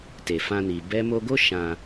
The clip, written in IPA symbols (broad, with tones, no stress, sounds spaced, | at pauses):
t e˨ f ã˧ n i˨ b ɛ˧ m o˧ ɡ o˦ ʃ ã˧